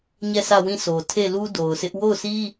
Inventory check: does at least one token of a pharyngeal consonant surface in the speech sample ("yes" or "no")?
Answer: no